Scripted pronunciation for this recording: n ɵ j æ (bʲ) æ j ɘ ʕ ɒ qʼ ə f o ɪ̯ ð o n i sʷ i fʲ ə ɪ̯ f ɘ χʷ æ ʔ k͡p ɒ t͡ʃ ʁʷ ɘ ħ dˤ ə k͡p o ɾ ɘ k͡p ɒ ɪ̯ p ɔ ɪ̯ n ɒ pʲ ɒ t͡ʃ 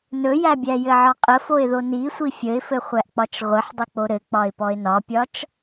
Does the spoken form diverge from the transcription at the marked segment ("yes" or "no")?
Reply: no